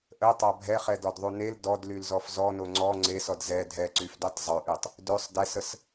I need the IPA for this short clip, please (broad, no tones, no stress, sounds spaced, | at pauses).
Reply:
ʔ ə tˤ a bʱ ɛ χ ɛ d ɔ d ðˤ u n e l d ɔ d l y l z ɔ f z ɔ n o ŋ͡ǀ ɔ ŋ͡ǀ e s ɔ d z ɛ dʱ ɛ ǀ y f d y tˤ zˤ ø ʔ y tˤ | d ø sˤ d ɛ s ə s